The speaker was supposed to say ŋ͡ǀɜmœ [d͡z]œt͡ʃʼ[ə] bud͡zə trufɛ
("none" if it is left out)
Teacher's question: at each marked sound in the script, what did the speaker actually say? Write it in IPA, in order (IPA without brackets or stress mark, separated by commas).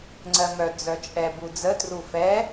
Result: d͡z, ɛ